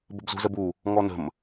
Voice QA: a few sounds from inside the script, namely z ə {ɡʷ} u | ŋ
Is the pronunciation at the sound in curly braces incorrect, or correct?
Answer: incorrect